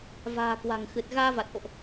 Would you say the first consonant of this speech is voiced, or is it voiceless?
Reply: voiced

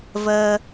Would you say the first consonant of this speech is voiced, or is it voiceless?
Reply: voiced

